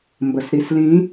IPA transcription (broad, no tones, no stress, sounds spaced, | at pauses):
m b ə s ɾ i s l ĩ